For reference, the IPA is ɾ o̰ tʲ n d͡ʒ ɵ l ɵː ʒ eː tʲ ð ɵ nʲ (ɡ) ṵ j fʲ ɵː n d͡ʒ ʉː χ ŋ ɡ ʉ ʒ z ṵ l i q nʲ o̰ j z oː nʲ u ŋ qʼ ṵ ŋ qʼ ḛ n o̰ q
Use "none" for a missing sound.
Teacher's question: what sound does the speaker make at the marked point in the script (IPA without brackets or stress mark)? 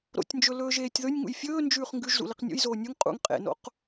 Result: ŋ